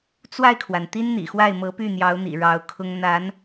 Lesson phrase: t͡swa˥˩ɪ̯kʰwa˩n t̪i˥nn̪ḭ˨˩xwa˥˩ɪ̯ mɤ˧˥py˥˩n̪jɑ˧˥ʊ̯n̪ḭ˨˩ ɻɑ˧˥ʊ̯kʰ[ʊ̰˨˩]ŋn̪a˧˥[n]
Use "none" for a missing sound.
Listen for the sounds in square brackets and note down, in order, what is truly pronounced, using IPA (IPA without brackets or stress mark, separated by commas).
ʊ˥, n